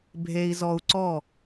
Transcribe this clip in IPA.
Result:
bʱ e˧ i̯ z ɔ˧ u̯ ǀ ɔ˦˨

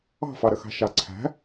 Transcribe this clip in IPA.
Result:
ɑ̤ f ɑ ɾ ə x ɑ̤ ʃ ɑ ǀʰ æ̤

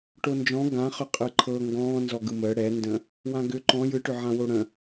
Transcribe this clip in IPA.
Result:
ʈ o n d͡ʒ ɔ̃ ɡ ã χ ʏ qʼ ɯ ǃʰ ɤ ŋ ɡ ɔ̃ː n z ɔ ɡ ɯ m əː ɽ ɛ n d ə̃ | w ã ɡ ʏ ǃ ɔ̃ j ɯ ʈ ʏ ʕ ã w o ɽ ə̃

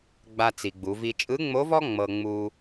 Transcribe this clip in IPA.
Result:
ɡ͡b a˧ t͡s i˩ ɡ͡b u˩˧ v i˧ t͡ʃʼ ɯ˧˥ ŋ͡m o˧˥ v ɔ˥ ŋ͡m ɤ˧ ŋ͡m u˧

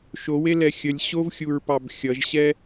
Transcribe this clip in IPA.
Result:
ʃ o w e l ɛ xʲ ə lʲ ɕ o v xʲ u ɹ p ɑ b xʲ ʌ ʒ ɕ ɛ

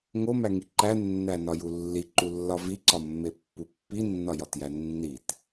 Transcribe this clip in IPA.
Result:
ŋ o m æ ŋ i ǃ æ nː æ n ɒ j u lː i ǃ u lː ɒ v i ǀ ɒ mː e pː u pː i nː ɒ j ɒ t j æ nː i t

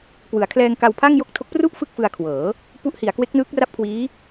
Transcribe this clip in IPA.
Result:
k w ɯ˩˦ a̯ kʰ l ɛː˧ ŋ k a˧ w pʰ a˥˩ ŋ j o˥˩ k̚ tʰ o˦˥ k̚ p r u˥˩ ʔ f ɯ˥˩ k̚ f ɯ˧ a̯ kʰ w ɤː˩˦ | p u˦˥ ʔ h i˩˦ a̯ k w e˦˥ k̚ n ɯː˦˥ k̚ r a˥˩ p̚ kʰ w iː˦˥

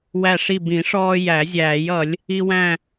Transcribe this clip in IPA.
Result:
w æ˥˨ ʂ i˥˨ b ĩ˨˩˦ ʂ ɔː˦ j æ˨˩˦ zʲ æː˨˩˦ j ʌ˨˩˦ lʲ | i˦ w æ̃˥˨

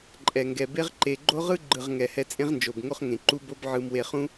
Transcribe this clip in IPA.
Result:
ǃʼ ɛ˨ ŋ ɡ ɛ˨ b e˦ ʁ ǃ e˨ ɡ͡ǃ o˦ ʁ ɯ˦ ɡ͡ǃ ɯ˨ ʁ ŋ ɛ˨ h ɛ˧ t͡sʼ ẽ˦ ʁ n d͡ʒ o˨ b ŋ o˦ χ ŋ ẽ˨ ǃ u˦ b o˦ b ʕ ɯ˧ m w e˧ χ ũ˦

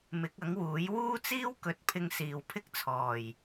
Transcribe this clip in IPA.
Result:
m ɪ˨˥ k̚ ɐ˨˥ ŋ w uː˨˥ j w uː˥ t͡s iː˥ w k ɵ˨˥ t̚ pʰ ɪ˧ ŋ s iː˨ w pʰ ɪ˥ k̚ t͡sʰ ɔː˨˩ j

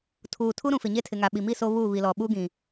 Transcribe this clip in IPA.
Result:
tʰ uː˨ tʰ u˦ ɾ ũ˨ f ɪ˨ ɲ e˦ tʰ ɪ˨ ŋ a˨ ɓ i˨ m i˦˨ s o˦ β uː˦˨ β i˨ l ɔ˨ ɓ u˦ ɡ ĩ˨

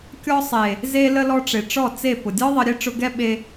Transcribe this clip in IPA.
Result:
kʲ ɔ˧ sˤ e˨ | z e˧ l ə˧ l ɔ˧ ʈ͡ʂ e˨ ʈ͡ʂ ɔ˦˨ t͡s e˦˨ p ʊ˨ dʲ ɔ˦ ðˤ ə˧ ɾʲ e˦ ʈ͡ʂ ʊ˧ ɡ ɛ˦ ɓ e˧

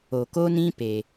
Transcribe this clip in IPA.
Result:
o˨ k o˦ n ĩ˦ p e˦

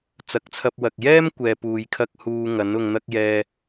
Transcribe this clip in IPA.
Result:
t͡s ɐ˨˥ k̚ t͡sʰ ɐ˧ p̚ w ɐ˨ k̚ j ɛː˥ m kʷ ɛː˧ p uː˧ j kʰ ɐ˥ k̚ h uː˧ ŋ ɐ˨˥ n ʊ˧ ŋ n̪ ɐ˥ k̚ j ɛː˧

